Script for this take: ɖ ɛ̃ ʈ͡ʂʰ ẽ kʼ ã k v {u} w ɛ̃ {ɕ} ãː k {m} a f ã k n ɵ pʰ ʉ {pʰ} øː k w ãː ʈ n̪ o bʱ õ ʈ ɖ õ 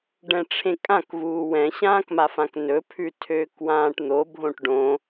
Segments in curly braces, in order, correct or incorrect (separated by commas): incorrect, correct, correct, incorrect